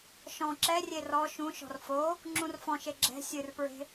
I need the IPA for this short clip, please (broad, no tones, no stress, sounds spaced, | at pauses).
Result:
ʃ ɔ̃ ǁ ɛ rʲ e r ɔ ʃ ũ ʃ ɔ̤ r f o | ŋ͡ǁ ũ r f ɔ̃ ʃ e ɡ͡ǁ ɛ̤ sʲ ɨ r p ɹ e̤